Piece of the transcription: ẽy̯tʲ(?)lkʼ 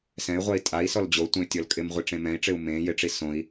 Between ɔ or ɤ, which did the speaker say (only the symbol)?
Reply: ɔ